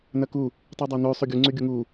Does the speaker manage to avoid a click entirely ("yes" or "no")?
no